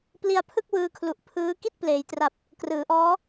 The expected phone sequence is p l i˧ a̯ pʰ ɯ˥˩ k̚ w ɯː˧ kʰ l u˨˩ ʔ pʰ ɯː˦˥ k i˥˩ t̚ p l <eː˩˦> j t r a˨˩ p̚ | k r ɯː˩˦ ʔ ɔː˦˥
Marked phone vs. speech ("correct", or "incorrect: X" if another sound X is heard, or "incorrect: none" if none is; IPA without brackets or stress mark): correct